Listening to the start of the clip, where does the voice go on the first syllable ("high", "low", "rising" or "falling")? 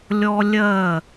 high